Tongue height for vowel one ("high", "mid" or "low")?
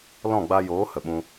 mid